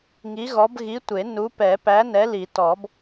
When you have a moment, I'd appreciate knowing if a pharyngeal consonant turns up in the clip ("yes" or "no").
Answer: no